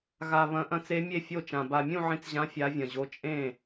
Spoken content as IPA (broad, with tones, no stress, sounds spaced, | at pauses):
ɣ a˨˩ β ɐ̃˨˦ ʔ ɐ̃˨˦ t͡s e˨˦ mʲ e˥˩ fʲ o˥˩ t͡ʃ ã˨˩ b a˨˩ mʲ ũ˥˩ ʕ ĩ˨˦ t͡s ʑ ã˨˦ fʲ a˨˦ vʲ ɐ̃˨˩ ʑ o˨˦ t͡ʃʼ ẽ˥˩